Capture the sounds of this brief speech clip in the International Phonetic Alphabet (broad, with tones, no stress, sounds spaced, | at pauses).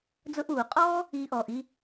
d͡z ʊ˧ ʔ uː˨ qʼ ɔː˦ | iː˦ ʔ ɔː˧ ʔ i˦